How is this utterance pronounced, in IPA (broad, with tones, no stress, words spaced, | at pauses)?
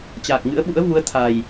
t͡ɕaː˨˩k̚ŋɨ̰˧˥ə̯ɓṵ˧˥ə̯ vu˨˦ə̯t̪ʰa˨˩j